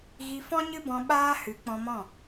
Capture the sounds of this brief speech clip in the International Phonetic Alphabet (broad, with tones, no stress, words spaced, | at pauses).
ɣi˧fɔ̃˦ɲɨ˦bɔ̃˧ ɓaː˦hɨ˨˦k͡pɔ̃˧mɔ̃˦˨